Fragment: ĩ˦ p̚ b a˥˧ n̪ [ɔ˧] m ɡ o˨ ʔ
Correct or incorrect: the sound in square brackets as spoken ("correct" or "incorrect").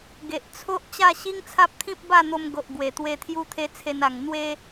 incorrect